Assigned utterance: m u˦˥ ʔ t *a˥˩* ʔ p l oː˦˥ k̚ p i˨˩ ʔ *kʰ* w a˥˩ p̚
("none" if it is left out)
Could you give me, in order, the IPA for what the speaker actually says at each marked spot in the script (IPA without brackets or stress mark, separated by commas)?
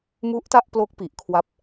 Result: a˥˩, kʰ